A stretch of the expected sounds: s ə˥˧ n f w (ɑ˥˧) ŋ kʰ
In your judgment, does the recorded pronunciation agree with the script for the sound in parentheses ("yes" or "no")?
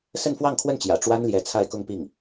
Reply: yes